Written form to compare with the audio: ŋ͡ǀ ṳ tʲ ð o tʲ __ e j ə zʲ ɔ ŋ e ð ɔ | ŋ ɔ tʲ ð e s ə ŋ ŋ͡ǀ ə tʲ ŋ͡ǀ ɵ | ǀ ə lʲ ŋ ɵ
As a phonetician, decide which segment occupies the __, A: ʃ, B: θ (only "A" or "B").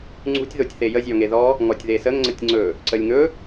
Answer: B